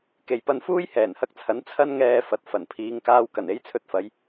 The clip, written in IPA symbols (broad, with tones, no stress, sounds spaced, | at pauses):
k e˨ j p ɐ˧ n f uː˥ j h ɛː˨˩ n h ɐ˧ k̚ t͡sʰ ɐ˨˥ n t͡sʰ ɐ˧ n ŋ ɛː˨ f ɐ˨ t̚ f ɐ˨˩ n pʰ iː˨˧ ŋ k aː˧ w k ɐ˨˩ n e˥ j t͡sʰ ɵ˧ t̚ f ɐ˨˧ j